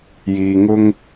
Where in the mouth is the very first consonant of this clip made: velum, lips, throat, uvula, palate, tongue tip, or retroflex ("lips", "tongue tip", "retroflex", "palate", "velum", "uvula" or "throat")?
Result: palate